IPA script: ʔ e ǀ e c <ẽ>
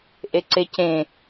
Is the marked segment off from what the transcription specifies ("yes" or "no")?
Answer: no